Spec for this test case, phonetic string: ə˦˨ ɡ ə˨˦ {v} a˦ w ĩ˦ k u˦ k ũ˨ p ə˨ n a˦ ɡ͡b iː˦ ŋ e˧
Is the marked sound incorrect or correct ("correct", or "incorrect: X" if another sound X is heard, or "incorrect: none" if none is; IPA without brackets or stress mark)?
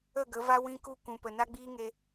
correct